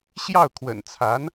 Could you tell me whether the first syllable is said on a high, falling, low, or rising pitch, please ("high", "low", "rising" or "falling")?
falling